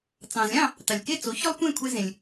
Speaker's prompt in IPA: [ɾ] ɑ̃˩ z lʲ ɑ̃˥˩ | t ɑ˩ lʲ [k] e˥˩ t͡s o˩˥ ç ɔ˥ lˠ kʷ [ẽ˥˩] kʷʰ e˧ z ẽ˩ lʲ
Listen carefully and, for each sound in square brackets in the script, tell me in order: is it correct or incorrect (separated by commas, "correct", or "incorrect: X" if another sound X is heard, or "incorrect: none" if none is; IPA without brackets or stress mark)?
incorrect: t͡s, correct, correct